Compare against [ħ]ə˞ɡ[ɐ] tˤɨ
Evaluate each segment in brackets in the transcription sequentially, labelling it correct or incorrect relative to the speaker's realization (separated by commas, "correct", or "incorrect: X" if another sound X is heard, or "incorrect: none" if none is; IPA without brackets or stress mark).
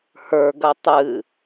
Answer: incorrect: h, correct